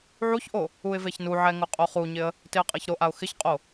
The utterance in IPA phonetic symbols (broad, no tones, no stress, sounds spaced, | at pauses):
ʕ u ç ʔ o | u ɪ̯ v e ç n u ʕ ɛ ŋ ʊ qʼ o χ u ɲ ɪ ə̯ | t ɪ ə̯ qʼ ɛ ç ɾ o ʔ a ʊ̯ x ɪ ç qʼ o